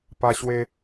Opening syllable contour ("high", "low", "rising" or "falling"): high